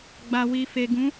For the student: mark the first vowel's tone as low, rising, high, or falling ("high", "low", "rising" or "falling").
low